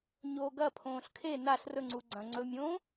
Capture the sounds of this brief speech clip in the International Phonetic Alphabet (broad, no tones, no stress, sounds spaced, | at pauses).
ɲ oː ɡ ɐ pʰ õː ɬ kʰ e n a ɬ r ɵ ŋ͡ǀ u ɡ͡ǀ ɐ̃ ŋ͡ǀ ɵ mʲ õː